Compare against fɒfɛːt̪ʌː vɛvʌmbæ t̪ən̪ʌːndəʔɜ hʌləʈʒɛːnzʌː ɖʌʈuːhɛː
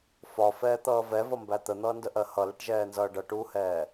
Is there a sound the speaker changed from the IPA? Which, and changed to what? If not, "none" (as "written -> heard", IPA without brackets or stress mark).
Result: none